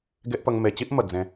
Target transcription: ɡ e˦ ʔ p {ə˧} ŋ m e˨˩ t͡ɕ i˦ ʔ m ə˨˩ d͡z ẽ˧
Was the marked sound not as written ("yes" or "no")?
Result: no